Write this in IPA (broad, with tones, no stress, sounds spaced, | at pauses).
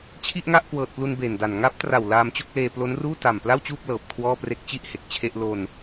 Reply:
t͡ɕʰ i˥˩ ʔ ŋ a˥˩ ʔ k w ɤː˨˩ t̚ p l u˧ n b eː˨˩ n d a˨˩ n ŋ a˦˥ p̚ t r a˨˩ w l aː˧ m t͡ɕ o˥˩ k̚ l eː˧ p l o˦˥ n r uː˥˩ t a˨˩ m p l a˥˩ w t͡ɕ uː˥˩ p̚ l ɤː˨˩ p̚ kʰ w ɔː˥˩ p r e˥˩ k̚ t͡ɕ i˥˩ ʔ h e˨˩ k̚ t͡ɕʰ e˥˩ ʔ l o˧ n